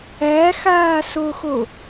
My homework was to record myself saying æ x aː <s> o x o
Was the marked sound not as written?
no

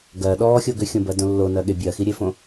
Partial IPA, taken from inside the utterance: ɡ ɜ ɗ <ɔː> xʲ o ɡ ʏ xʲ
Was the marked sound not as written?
no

